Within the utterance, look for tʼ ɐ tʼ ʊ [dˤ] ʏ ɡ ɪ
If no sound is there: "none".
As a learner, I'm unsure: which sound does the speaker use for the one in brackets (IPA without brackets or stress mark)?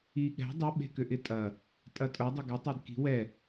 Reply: dˤ